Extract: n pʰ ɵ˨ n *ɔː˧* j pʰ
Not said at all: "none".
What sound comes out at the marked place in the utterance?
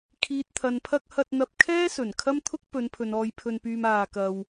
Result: ɔː˧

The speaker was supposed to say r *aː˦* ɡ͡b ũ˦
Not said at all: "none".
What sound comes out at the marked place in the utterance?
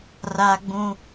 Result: aː˦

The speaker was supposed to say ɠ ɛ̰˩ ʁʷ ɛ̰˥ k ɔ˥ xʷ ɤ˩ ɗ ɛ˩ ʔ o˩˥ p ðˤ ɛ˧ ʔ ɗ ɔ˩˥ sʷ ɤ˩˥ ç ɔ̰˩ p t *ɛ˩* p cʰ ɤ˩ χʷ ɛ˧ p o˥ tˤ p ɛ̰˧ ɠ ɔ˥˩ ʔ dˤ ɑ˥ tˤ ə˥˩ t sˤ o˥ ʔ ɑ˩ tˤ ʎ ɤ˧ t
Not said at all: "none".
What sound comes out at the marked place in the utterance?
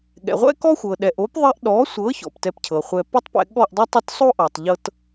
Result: ɛ˧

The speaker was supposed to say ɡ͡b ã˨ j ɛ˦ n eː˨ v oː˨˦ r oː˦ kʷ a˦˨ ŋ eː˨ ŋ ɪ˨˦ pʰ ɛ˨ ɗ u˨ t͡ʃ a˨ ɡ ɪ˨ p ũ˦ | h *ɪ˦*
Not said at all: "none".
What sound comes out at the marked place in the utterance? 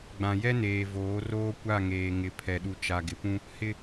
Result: ɪ˦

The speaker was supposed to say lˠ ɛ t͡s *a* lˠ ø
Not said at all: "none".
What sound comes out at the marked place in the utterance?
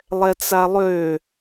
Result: a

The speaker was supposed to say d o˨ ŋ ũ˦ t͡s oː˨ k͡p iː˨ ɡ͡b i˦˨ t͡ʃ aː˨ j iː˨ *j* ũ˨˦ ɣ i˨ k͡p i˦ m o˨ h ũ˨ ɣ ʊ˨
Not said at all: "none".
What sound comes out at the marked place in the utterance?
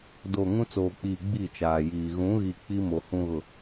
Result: ɣ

